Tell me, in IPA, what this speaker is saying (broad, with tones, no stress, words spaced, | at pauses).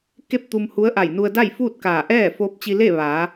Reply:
ke˥˨p̚t̪u˧mhu˧˥ə̯ʔa˧˩j nu˧ə̯da˥˨j fuː˥˨t̚kaː˧˩ʔɛː˥˨ foː˧˥p̚t͡ɕi˧le˥˨ ʋa˩˧